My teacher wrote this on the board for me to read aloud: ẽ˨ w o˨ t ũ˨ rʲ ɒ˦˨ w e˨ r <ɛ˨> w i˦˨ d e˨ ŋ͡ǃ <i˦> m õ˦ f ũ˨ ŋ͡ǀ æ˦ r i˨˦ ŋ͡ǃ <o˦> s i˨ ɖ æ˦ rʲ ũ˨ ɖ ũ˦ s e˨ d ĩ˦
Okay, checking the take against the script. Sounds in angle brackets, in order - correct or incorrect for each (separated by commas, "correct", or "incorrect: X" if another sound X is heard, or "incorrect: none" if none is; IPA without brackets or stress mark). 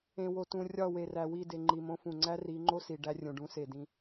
incorrect: æ˨, incorrect: i˨, correct